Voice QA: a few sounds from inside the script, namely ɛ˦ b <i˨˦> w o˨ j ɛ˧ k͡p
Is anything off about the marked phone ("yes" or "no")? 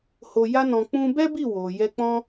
yes